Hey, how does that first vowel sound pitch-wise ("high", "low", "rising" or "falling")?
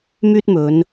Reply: high